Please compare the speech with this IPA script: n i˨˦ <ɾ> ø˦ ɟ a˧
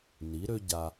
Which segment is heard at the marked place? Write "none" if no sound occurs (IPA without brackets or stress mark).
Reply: ɾ